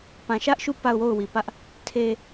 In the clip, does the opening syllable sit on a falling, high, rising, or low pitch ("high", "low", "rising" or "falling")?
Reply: low